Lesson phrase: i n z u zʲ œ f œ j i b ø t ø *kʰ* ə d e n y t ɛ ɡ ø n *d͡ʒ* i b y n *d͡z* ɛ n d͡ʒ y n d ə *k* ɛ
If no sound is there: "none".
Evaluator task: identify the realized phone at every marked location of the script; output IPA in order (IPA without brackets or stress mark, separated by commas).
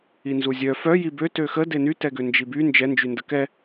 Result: x, d͡ʒ, d͡ʒ, k